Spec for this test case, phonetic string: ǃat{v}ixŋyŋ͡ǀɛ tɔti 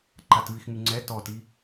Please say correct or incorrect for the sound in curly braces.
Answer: correct